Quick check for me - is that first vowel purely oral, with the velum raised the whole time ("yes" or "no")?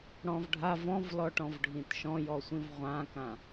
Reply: no